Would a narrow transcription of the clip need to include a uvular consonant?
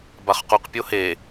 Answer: yes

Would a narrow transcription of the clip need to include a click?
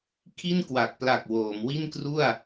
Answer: no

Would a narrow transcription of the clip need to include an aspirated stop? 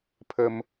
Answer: yes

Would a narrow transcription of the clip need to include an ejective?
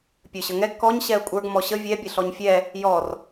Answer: yes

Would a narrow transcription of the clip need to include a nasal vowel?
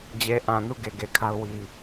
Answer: yes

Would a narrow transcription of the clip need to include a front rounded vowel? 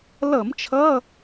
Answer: no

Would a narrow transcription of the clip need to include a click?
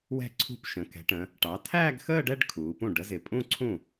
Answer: yes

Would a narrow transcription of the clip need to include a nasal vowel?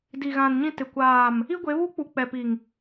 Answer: yes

